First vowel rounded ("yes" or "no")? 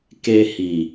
no